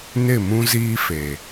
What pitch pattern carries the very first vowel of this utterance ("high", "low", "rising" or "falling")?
falling